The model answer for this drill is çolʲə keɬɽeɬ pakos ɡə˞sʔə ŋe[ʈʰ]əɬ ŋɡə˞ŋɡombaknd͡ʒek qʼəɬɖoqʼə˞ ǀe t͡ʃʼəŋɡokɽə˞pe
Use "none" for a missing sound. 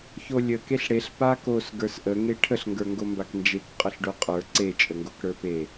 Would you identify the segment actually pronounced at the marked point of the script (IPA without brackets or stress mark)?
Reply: ʈʰ